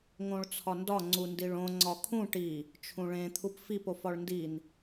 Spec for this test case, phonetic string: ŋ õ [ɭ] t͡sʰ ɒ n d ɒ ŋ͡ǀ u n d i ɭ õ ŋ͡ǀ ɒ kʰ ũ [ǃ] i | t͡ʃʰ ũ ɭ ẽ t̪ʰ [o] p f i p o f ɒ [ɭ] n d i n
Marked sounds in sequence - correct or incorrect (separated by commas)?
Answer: correct, incorrect, incorrect, correct